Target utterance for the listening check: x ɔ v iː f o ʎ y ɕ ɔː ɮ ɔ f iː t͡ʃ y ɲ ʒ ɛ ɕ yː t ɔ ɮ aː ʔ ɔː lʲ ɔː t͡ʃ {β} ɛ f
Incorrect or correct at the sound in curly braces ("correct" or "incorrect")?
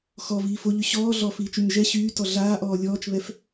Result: correct